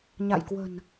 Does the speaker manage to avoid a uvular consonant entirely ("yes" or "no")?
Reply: yes